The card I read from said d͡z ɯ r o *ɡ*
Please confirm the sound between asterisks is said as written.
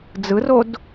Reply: no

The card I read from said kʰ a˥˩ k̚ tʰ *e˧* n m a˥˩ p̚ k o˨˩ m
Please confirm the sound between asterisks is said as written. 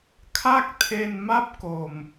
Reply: yes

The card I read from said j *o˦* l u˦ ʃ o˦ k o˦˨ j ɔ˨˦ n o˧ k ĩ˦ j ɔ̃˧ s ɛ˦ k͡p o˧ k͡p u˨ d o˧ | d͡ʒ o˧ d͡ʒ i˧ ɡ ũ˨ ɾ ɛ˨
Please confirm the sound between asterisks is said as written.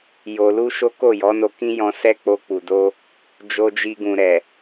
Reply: no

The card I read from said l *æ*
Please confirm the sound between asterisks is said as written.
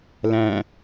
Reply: no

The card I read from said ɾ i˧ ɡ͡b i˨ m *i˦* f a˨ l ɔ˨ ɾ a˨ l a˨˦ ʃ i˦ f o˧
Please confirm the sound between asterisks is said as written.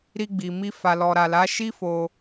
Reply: no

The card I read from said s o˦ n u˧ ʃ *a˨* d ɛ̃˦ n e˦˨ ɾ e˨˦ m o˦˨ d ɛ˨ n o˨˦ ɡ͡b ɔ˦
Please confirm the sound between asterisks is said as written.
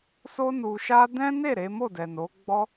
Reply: no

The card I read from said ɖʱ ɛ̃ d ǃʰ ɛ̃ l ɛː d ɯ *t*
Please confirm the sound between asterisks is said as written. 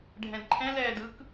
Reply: no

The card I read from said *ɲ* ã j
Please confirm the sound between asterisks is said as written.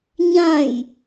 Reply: yes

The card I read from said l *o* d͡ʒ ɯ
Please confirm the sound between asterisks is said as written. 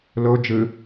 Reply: yes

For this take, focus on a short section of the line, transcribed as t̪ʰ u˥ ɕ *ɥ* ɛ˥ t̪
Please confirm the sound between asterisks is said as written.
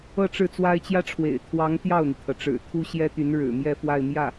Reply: no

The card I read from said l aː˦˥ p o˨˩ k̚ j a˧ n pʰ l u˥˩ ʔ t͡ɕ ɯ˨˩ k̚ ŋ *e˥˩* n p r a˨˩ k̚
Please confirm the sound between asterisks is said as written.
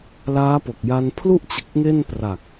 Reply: yes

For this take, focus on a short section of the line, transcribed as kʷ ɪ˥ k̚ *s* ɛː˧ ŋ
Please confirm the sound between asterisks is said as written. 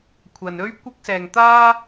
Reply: yes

